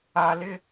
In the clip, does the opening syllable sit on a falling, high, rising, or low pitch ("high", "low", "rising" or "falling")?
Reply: low